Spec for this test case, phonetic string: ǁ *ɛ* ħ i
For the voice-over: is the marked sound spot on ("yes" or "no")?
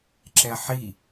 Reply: yes